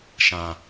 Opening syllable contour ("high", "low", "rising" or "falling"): low